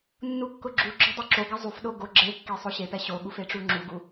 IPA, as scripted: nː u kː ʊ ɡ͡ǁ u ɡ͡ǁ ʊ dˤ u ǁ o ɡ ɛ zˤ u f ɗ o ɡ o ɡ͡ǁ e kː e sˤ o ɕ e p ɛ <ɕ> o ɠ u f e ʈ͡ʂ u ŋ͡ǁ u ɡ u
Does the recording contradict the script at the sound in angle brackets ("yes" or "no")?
no